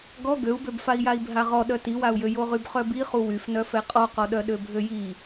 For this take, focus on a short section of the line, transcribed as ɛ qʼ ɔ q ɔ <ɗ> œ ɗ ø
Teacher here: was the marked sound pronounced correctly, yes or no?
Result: yes